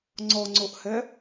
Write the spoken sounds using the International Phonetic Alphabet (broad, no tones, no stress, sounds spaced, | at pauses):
ŋ͡ǀ ɔ ŋ͡ǀ o ʔ h ɛ